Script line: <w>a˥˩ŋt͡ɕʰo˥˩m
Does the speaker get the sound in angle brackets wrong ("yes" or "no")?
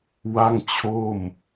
no